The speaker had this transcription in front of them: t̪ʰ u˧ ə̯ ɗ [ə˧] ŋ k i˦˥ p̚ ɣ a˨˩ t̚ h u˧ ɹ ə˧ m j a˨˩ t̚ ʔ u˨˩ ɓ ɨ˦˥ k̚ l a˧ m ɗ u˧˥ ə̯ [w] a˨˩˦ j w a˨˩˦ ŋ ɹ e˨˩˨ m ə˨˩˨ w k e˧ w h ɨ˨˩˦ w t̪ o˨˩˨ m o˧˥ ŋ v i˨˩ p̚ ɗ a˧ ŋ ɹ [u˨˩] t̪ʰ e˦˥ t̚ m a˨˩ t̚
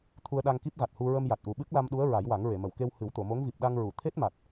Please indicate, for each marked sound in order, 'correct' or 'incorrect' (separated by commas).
incorrect, incorrect, incorrect